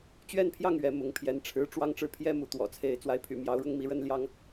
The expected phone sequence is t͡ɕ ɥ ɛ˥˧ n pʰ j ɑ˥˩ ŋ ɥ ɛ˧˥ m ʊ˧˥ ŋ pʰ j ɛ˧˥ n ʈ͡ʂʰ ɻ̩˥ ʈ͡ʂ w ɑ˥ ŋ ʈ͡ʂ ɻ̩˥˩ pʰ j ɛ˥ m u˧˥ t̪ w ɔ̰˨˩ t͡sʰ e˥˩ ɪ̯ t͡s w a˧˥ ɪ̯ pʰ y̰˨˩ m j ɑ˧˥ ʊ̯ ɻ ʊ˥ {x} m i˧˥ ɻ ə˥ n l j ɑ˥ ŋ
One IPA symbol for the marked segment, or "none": ŋ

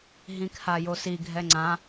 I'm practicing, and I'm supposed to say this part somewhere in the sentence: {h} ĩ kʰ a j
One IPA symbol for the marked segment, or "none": ɦ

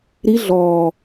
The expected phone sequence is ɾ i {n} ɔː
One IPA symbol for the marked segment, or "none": ɮ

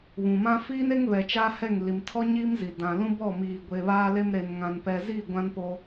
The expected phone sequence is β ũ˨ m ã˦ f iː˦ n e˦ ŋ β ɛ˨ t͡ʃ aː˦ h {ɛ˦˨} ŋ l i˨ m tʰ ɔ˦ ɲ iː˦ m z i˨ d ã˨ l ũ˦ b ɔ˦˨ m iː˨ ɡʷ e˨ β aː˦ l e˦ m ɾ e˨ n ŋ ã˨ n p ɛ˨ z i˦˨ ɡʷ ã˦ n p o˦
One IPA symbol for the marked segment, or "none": ɛ˦˨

